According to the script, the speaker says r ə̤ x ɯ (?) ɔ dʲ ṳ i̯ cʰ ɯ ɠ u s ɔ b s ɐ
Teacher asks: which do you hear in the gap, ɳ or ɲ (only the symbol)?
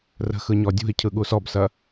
ɲ